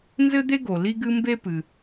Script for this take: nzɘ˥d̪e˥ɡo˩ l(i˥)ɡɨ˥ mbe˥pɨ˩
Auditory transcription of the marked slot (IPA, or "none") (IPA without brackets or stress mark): i˥